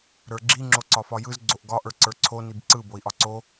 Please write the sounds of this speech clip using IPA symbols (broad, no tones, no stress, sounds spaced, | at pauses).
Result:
ɾ ə˞ ɡ͡ǁ i ŋ͡ǁ o ǀ ɒ f ɒ j ɯ z ɡ͡ǀ o ʔ ɡ ɒ ʔ ə˞ ǀ ə˞ ǀʰ o n i b ǀ ɯ b o i̯ ʔ ɒ ǀ o